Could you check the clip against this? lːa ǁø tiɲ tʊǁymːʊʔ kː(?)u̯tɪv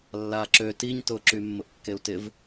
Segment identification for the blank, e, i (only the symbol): e